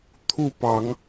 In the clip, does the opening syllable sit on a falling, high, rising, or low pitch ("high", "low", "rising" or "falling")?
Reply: falling